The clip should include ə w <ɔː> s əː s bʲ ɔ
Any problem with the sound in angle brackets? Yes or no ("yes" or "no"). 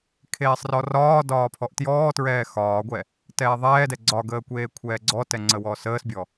no